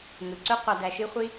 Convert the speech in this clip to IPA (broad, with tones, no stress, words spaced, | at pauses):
ŋɯ˨ǀø˦ qʷɑ˧dæ˧ʃi˦ χʷi˦